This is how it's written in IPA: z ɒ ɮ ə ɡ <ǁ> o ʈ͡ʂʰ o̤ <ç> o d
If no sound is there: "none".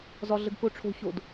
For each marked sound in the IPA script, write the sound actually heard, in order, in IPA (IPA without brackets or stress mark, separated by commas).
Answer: k, ç